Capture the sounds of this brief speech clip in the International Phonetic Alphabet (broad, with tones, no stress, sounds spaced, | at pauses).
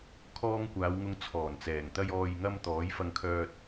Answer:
kʰ ɔː˧ ŋ kʷ aː˨˧ w ŋ ʊ˧ ŋ t͡sʰ ɔː˨˩ n t͡s ɛː˨˩ ŋ t̪ ɐ˧ j ɔː˨ j ŋ ɐ˧ m t̪ ɔː˨˥ j f ɐ˧ ŋ kʰ œː˧ t̚